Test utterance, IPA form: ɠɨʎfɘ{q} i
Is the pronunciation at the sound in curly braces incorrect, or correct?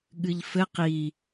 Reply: correct